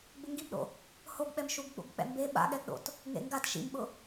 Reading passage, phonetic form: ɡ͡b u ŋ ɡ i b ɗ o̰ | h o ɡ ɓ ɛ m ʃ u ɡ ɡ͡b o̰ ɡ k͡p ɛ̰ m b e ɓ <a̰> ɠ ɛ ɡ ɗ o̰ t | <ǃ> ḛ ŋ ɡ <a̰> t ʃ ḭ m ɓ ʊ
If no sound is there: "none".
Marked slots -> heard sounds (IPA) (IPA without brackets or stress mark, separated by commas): a̰, ŋ, a